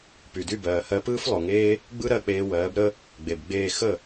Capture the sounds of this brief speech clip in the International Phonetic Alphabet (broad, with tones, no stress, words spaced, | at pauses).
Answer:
py˩ dy˥˩bɜː˩ hɜ˧pɯː˥flˠo˩ŋeː˥ | ɡ͡bɯ˥ɾɜ˥˩k͡peː˧wɜː˩˥b ɾə˥ | ɡ͡be˩bɡ͡beː˥˩ xə˥˩